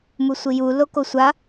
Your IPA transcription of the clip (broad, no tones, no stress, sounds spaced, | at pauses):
m u sʷ i j u l o k o sʷ a